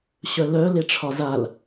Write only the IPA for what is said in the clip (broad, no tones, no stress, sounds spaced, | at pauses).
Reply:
ɕ œ l œ l e ʈ͡ʂʰ ɒ z a l